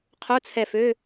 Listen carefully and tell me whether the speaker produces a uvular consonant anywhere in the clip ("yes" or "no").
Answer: yes